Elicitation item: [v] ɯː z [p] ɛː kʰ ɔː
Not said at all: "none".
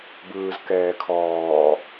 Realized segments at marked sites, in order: b, k

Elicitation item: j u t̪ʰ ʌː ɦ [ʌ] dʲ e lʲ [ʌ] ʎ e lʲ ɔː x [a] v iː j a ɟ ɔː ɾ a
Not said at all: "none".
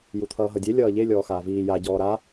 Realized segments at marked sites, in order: ʌ, ʌː, aː

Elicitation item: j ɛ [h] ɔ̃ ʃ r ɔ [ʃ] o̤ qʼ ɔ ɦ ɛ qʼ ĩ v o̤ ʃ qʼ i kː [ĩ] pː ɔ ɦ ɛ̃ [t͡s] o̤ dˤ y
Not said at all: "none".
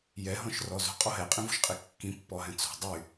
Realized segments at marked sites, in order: ɦ, z, ĩ, t͡s

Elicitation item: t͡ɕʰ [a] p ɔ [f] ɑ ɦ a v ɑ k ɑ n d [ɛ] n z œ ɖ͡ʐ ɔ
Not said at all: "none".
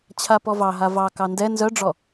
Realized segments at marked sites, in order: a, v, ɛ

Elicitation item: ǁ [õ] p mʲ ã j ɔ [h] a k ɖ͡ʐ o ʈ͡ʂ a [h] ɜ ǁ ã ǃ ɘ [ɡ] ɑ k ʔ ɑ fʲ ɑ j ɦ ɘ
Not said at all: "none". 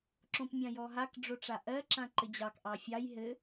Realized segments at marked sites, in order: õ, ɦ, ʔ, d͡ʑ

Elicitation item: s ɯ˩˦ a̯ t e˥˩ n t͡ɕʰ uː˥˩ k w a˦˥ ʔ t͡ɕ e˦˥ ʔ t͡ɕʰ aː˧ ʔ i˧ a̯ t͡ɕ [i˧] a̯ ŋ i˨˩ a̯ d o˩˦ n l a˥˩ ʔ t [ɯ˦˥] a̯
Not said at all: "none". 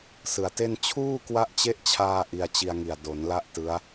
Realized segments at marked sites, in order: i˧, ɯ˦˥

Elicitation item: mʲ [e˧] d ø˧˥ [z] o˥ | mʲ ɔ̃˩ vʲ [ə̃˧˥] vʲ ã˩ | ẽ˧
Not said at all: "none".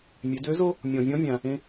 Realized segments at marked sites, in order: e˩˧, z, ɔ̃˧˥

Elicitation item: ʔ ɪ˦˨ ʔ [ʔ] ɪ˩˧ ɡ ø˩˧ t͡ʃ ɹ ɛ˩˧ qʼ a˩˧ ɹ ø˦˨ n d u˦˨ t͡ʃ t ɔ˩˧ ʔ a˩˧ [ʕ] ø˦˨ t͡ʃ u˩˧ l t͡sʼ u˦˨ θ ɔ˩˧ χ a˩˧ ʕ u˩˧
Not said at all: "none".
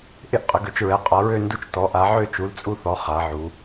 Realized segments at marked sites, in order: qʼ, ʕ

